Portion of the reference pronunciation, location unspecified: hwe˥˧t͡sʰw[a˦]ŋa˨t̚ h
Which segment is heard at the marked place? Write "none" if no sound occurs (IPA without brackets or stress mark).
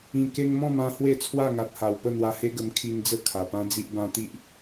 a˥˧